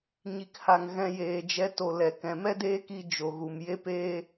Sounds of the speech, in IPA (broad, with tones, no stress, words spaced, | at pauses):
ɲi˨kha˨ŋ ɣɛ̃˧jeː˨d͡ʒɛ˧ to˨lɛ˨ kɛ̃˨mɛ˦deː˦ki˧ d͡ʒo˨ɣu˨m je˦peː˦